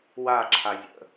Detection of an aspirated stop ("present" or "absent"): present